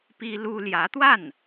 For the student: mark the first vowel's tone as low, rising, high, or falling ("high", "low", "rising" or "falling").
high